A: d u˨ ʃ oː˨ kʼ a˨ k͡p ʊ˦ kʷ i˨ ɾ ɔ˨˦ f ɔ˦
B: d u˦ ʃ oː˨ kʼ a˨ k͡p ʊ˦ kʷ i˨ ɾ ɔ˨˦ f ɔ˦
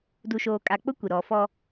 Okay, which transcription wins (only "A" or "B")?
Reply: A